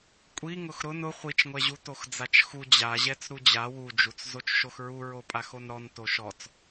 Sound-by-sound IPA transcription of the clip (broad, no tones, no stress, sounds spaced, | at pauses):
kʷʼ i ŋ ʊ x ɾ ʊ n ʊ χʷ i t͡ʃ ŋʷ ɛ ʑ u t o x d͡z a t͡ʃ x u d͡ʑ a ʑ ɛ t͡s ɾ u d͡ʑ a w u d͡ʒ u t͡s z o t͡ʃ ʃ o x ɹ u ɹ o pʼ a x o n ɾ ɔ n t o ʃ ɔ t͡s